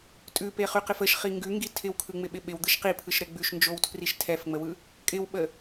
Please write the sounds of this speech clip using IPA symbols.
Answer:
tʼ ʉ p e χ y q ɪ f ə ʃ χ i ŋ ɡ ʉ ŋ ɡ i tʰ ɪ w kʰ ɯ ŋ͡m ɪ ɓ ɪ ɓ ɪ w d̪ ɯ ʃ q i pʰ ɯ ʃ ɾ ɛ ɡ͡b ʉ ʃ n d͡ʒ o w tʰ r i ʃ tʰ ɛ f ŋ͡m ə w ɯ | kʼ ɪ w ɓ ə

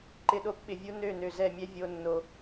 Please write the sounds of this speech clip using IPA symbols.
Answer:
ǃ ɪ˨ ɗ o˦ p ɓ ɪ˨ vʲ u˦ n ø˦˨ n ø˨ z ɛ˦˨ mʲ ɛ˦ vʲ o˦ nː o˦

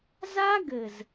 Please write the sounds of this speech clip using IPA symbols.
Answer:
z a˦ ɡ ɘ˨ z

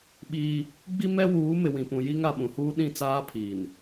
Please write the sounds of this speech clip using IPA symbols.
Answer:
ɓ iː˦ | ɡ͡b i˦ m ɛ˦ w uː˨˦ m ɪ˨ w ĩ˨ p ũ˨ j i˦ ŋ a˨ ɓ ũ˨ h uː˦ ɗ ĩ˦˨ t͡s aː˦ pʰ iː˨ n

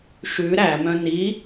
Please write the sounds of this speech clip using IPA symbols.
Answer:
ʃ ʉ ɾ æ m œ̃ n i

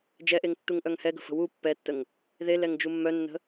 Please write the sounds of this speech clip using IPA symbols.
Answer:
d͡ʒ ɛ ʔ e ŋ tː u ŋ ʔ œ ŋ h ɛ ɡ ə̤ f ə̤ w u pː ɛ tː ə ŋ | ð e l ɛ ŋ d͡ʒ u mː œ nː ə̤

